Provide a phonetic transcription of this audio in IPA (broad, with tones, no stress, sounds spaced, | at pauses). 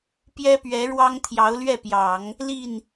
p j ɛ˥ p ɥ ɛ˧˥ ɻ w ɑ˥ ŋ t̪ʰ j ɑ˧˥ ʊ̯ l ɥ ɛ˥˩ p j ɑ˨˩˦ ŋ | l i˥˩ n